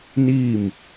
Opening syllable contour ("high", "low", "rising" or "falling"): falling